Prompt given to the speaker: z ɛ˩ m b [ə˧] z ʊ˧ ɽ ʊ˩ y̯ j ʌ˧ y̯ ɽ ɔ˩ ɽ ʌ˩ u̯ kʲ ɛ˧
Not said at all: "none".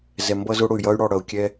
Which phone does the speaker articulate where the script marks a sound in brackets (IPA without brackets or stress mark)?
ʌ˧